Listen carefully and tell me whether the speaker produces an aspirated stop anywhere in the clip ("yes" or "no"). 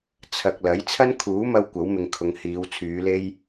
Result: yes